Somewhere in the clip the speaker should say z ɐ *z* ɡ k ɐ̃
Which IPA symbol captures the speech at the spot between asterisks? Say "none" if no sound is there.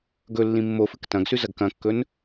none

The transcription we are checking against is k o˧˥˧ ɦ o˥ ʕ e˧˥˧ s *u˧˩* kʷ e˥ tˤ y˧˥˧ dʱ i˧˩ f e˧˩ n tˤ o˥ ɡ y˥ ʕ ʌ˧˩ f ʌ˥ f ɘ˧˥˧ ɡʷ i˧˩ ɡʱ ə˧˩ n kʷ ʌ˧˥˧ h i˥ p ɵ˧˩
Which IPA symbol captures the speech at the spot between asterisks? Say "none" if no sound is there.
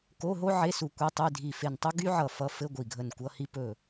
u˧˩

